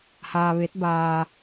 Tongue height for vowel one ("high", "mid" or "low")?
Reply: low